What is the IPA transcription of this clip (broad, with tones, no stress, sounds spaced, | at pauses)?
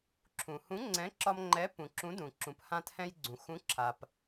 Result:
ǁʰ ũ˩ h ũ˨˥ ŋ͡ǀ ɛ̃˨˥ ǁ ɒ˧ m ŋ͡ǃ ɛ˨˥ p ũ˩ ǁ ũ˨˥ d ũ˩ ǁ ũ˩ p h ã˧ t h ɛ̃˧ j ɡ͡ǀ ũ˩ x ũ˨˥ ǁʰ a˩ p